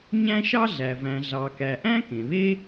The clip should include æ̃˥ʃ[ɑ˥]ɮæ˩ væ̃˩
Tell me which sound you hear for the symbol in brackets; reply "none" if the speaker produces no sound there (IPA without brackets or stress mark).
ɑ˥